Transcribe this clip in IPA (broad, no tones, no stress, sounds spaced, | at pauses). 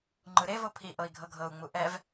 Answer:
ŋ͡ǃ ɯ ɾ e v o pʰ i ʔ ɤ i̯ ɡʱ ɤ ɡʱ ɤ u̯ ŋ͡m u ʔ ɛ v